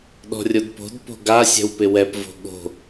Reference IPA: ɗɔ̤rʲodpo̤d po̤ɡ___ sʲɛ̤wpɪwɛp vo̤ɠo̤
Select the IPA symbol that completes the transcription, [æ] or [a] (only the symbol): a